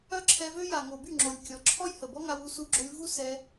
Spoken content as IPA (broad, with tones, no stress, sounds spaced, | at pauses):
œ˦ ǁʰ ɛ˧ v ø˦ j a˨ ŋ o˨ b y˦˨ ŋ͡ǁ o˨ lʲ kʲ ɔ˧ ǁʰ ɔ˦ j h ə˨ b ɔ˦ ŋ a˧ w u˦ s u˧ ɡ͡ǁ o˧ lʲ v u˦ s ɛ˧